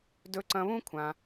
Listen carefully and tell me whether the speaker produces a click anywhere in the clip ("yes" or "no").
yes